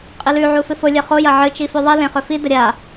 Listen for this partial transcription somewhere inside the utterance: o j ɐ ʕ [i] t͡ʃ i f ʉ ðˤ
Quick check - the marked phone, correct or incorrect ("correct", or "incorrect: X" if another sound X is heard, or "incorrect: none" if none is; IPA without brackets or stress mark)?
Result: incorrect: ɨ